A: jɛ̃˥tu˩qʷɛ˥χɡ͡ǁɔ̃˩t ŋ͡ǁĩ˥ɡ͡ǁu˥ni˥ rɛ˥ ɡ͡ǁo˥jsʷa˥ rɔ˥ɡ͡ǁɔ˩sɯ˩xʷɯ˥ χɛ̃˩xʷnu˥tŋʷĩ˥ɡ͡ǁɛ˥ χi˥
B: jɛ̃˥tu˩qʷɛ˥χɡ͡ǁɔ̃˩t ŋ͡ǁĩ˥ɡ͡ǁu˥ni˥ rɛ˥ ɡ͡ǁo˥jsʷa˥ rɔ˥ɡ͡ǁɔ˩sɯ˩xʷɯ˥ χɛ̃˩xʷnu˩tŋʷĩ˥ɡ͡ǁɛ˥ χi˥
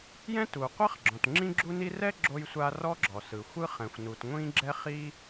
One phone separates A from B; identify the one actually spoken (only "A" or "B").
B